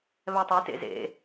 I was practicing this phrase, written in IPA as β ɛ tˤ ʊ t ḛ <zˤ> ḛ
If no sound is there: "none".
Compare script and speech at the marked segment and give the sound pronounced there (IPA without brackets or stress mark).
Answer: z